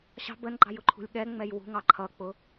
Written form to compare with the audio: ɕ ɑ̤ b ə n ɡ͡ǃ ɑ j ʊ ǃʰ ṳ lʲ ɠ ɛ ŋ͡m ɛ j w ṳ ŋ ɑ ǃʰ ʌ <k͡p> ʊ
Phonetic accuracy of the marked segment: correct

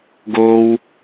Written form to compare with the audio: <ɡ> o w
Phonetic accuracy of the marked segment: correct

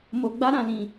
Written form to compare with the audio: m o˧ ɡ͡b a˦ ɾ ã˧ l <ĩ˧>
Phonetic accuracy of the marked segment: correct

